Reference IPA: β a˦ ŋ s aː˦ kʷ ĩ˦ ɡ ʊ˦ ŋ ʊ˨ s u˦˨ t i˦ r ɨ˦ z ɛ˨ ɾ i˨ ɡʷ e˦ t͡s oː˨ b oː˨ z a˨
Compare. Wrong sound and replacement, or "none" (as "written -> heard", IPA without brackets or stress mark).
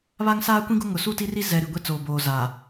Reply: ɨ˦ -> i˦